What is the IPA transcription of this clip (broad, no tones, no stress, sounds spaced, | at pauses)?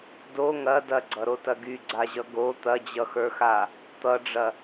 d o ŋ ɐ d ɐ ɡ͡ǀ ʌ ɾ o t ɐ ɡ y ɡ͡ǀ a ʑ ʌ ɡ o t̪ ɐ d͡ʑ ʌ x ə˞ x a | t̪ ʌ ɖ͡ʐ ɐ